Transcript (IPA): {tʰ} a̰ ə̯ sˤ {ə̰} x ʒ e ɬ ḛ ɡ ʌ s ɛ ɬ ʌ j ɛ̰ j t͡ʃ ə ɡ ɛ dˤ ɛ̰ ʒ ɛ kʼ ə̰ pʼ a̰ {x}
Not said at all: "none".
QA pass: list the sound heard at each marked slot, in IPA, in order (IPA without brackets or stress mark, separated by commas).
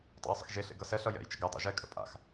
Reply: tˤ, ə̰, x